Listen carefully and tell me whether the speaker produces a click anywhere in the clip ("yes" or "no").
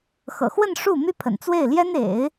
no